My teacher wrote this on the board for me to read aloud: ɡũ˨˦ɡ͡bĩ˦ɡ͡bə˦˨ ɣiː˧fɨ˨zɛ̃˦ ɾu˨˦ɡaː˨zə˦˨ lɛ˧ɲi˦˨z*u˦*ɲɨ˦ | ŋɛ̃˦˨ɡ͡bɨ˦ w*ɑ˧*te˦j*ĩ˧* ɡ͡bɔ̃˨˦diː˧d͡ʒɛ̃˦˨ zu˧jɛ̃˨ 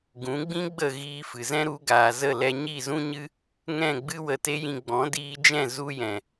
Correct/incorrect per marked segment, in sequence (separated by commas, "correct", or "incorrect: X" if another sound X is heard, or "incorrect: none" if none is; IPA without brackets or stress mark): incorrect: ũ˦, incorrect: ə˧, correct